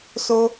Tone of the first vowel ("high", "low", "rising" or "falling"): high